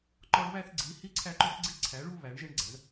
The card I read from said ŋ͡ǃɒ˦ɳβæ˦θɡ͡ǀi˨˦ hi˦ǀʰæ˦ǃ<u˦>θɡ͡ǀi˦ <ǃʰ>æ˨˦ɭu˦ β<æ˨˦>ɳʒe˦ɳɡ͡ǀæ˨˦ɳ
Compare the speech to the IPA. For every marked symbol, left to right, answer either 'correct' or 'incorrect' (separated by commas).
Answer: incorrect, incorrect, correct